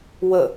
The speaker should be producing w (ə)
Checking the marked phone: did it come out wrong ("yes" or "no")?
no